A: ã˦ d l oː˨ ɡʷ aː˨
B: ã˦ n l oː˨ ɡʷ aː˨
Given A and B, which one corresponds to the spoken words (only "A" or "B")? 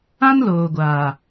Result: B